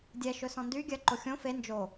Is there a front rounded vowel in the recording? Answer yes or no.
yes